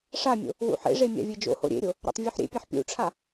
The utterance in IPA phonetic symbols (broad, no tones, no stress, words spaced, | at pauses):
ʂamʲo̰ | wṵħḛʐe mʲa̰vʲed͡ʒo̰ho̰ ɾʲḛɾʲo | ɾa̰tˤvʲuħɾʲḛpʲaħ pʲṵʈ͡ʂʰa